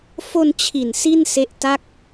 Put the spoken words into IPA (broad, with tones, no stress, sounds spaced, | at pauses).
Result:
f o˧ n t͡ɕʰ i˨˩ n s i˥˩ n s e˦˥ ʔ t a˥˩ k̚